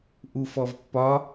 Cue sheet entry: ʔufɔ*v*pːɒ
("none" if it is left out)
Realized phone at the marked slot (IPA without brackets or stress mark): v